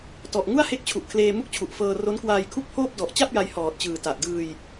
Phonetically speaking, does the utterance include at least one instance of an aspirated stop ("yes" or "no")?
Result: yes